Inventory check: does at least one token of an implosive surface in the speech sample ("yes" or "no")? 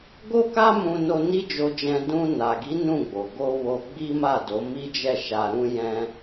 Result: no